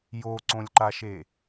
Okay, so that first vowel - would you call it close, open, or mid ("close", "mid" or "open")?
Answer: mid